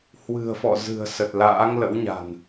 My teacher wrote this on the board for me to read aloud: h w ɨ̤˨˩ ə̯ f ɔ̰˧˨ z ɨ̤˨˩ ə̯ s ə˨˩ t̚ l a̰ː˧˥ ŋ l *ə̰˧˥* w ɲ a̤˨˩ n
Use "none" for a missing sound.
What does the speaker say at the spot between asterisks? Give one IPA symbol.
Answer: ə̰˧˥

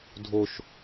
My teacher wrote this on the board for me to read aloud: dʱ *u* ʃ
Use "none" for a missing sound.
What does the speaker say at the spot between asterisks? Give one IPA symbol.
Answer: o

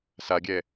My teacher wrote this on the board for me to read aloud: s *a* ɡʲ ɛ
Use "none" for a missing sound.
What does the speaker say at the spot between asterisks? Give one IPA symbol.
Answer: a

